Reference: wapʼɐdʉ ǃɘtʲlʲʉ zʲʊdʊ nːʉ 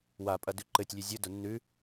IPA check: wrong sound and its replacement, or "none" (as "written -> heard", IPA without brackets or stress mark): none